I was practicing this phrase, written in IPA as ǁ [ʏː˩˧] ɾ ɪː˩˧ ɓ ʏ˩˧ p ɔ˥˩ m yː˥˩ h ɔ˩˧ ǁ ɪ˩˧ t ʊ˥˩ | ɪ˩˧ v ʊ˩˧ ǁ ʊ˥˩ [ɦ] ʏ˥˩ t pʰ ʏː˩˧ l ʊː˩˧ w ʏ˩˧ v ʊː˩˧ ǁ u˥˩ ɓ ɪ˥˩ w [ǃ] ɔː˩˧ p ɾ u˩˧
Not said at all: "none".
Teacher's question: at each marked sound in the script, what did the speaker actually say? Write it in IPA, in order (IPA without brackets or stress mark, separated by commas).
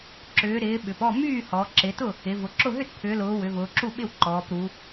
ʏː˩˧, ɦ, ǃ